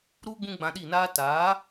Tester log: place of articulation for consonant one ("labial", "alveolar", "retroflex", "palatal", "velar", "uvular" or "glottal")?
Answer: alveolar